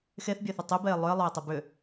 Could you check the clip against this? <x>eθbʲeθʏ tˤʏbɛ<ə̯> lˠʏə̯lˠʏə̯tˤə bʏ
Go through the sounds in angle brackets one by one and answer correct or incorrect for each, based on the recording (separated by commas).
correct, incorrect